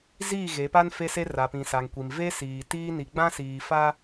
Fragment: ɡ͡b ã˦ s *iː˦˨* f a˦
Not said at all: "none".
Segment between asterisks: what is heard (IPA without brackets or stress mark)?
iː˨